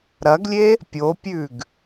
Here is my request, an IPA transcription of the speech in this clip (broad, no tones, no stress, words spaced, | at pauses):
ɾɐɡlʲe | pʲopʲʉɡ